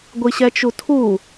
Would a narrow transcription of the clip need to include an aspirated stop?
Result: yes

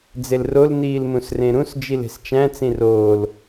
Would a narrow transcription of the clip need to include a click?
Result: no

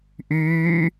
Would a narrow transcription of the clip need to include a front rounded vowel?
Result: yes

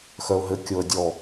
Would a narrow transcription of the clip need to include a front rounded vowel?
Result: yes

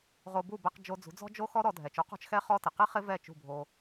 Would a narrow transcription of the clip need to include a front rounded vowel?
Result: no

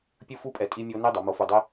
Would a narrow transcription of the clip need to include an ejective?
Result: yes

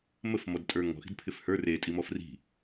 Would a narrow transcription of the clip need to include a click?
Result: no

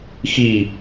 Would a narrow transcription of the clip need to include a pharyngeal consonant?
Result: no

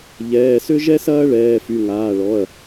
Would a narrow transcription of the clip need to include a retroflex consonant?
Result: yes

